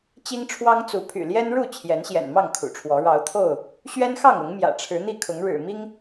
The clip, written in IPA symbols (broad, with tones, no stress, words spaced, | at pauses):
t͡ɕi˦ŋʈ͡ʂʰwɑ˦ŋt͡su˨˦ pʰy̰˨˩ljɛ˦n ɻu˥˨ t͡ɕʰjɛ˨˦nɕjɛ̰˨˩nmɑ˥˨ŋ kʰṵ˨˩ʈ͡ʂʰwɔ˨˦ ɻɑ˨˦ʊ̯t̪ʰo˥˨ʊ̯ | ɕɥɛ˦nxɑ˥˨ŋʊ˨˦ŋ mjä̰˨˩ʈ͡ʂʰɻ̩˨˦n̪i˥˨kʰʊ˨˦ŋ ɻɻ̩˨˩mi˦ŋ